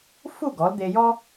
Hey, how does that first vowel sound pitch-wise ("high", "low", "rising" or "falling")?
falling